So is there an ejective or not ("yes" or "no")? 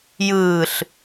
no